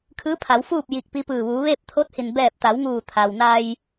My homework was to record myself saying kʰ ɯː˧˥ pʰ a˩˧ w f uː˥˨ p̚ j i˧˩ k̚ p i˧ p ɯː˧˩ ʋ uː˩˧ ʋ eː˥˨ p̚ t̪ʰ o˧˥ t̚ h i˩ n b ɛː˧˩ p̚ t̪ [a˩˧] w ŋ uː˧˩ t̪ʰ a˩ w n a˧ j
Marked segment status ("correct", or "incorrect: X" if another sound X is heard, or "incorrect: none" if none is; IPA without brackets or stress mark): correct